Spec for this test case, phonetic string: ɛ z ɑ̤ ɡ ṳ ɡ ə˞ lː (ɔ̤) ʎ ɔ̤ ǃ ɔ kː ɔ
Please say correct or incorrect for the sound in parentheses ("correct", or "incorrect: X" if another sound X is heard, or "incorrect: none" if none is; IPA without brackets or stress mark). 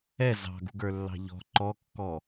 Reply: incorrect: ɑ̤